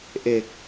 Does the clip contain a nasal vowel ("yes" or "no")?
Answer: no